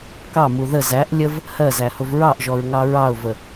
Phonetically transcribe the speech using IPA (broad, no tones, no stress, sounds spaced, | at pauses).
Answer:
k ɑ m u ð ə z æ ʔ lʲ ə v | h ɜ z æ h ʊ v ɹ ɑ ʔ ʒ ɔ ɹ ŋ ɑ ɹ ɑ ʊ̯ v ə